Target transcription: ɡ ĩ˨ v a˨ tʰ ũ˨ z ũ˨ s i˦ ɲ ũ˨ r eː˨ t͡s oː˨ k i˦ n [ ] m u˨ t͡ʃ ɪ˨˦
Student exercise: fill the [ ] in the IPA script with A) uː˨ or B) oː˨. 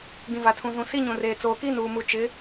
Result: A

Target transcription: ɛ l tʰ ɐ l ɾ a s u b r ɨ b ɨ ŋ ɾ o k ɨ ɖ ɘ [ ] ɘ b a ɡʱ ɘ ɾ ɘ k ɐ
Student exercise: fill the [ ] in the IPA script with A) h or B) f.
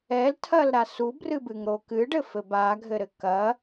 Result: B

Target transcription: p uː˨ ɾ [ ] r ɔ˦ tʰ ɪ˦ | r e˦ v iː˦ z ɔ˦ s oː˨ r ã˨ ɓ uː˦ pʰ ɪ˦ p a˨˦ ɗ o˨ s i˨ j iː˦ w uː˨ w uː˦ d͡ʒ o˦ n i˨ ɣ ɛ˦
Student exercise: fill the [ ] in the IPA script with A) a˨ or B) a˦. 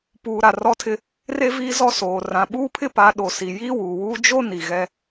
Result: A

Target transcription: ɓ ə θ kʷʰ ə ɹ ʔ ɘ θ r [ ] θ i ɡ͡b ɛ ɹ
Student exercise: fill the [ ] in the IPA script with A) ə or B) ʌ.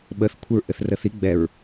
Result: A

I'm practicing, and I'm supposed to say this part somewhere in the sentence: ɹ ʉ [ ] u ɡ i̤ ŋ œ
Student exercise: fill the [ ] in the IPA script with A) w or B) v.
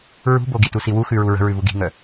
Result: B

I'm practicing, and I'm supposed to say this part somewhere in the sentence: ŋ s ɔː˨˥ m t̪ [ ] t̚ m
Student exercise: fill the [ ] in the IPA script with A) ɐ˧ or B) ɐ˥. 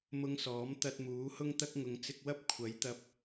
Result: A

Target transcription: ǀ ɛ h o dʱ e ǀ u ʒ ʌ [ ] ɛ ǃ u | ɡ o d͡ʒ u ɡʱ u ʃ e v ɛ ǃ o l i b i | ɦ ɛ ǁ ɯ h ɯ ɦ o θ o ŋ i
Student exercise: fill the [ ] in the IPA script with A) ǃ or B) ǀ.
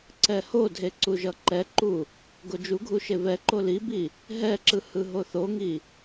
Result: A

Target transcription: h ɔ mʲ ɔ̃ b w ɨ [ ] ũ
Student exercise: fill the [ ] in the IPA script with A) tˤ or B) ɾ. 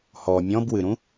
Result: B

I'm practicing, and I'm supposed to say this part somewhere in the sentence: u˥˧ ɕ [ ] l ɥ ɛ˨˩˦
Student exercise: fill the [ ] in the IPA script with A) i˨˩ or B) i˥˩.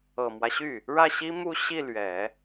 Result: B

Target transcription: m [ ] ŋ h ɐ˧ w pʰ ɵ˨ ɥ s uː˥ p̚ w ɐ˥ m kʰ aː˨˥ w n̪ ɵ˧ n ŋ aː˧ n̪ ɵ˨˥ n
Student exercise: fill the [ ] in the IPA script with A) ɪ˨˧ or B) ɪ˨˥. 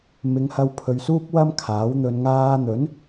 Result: A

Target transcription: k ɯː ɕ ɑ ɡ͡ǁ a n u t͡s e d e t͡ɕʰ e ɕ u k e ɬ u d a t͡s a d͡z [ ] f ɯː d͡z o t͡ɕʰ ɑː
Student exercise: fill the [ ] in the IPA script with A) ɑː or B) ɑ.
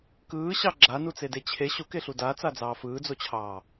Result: A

